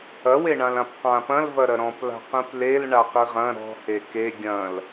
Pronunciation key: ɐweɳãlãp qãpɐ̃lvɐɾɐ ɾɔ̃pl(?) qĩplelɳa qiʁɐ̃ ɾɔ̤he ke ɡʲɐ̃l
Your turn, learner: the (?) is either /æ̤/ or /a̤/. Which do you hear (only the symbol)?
a̤